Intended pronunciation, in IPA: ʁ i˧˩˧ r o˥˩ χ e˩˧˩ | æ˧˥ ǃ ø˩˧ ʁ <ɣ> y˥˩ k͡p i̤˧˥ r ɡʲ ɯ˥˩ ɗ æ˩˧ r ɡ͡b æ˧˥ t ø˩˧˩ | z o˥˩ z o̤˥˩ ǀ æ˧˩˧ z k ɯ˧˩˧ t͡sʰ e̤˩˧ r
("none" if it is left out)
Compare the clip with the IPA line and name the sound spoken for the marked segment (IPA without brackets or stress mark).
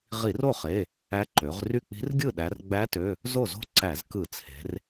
r